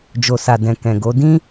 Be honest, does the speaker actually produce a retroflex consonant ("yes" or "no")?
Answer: no